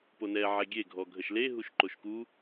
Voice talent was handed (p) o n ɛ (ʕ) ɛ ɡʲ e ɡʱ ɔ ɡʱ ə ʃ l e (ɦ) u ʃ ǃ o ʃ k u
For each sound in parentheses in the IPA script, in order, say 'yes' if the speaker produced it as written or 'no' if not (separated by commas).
yes, yes, yes